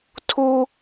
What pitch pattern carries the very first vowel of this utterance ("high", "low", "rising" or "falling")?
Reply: high